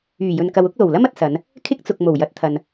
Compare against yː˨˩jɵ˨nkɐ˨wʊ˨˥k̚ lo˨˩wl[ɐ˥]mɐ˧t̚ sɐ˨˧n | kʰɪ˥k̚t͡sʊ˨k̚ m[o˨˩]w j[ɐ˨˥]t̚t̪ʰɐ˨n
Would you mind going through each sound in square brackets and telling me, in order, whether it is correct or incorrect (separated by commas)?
correct, correct, correct